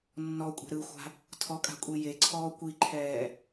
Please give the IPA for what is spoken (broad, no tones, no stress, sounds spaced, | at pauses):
nː ɔ kʷʼ e̤ ɾ ɯ xʷ a̤ | tʰ ɔ kʼ a̤ kʷʼ i j e ǀʰ ɔː kʷ i ǃʰ ɛː